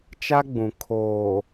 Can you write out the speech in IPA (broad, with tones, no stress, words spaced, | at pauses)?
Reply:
t͡ʃa˦ɡ͡bũ˨ kʰoː˨